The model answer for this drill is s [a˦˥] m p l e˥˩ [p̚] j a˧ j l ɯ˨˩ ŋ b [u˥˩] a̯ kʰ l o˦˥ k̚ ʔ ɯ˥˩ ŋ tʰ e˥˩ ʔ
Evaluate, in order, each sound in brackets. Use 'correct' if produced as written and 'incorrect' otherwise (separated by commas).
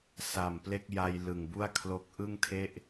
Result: incorrect, incorrect, correct